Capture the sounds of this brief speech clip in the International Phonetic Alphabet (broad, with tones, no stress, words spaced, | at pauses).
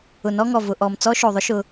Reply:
ʊ˨nɔ˦ŋɔ˨ vʊ˨ʔɔ˨m t͡sɔ˦ʃo˨ðˤʊ˦ ʃʊ˦